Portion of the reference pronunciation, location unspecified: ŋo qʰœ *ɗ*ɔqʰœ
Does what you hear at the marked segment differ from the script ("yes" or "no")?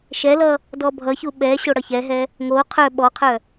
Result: yes